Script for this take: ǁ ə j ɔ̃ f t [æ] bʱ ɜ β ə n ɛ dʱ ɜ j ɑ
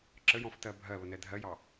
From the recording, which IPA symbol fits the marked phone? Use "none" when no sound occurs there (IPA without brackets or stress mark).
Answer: ɜ